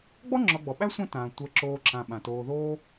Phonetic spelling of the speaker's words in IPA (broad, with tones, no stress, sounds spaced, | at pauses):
ɡ͡b ɔ˥ ŋ͡ǁ ɔ˨ ɡ͡b ɔ˩ ɓ æ˥ sʷ ã˦ t ãː˩ tʷ əː˨ ǁ oː˨ ǁ ã˩ ɓ ã˩ t oː˨ ð oː˥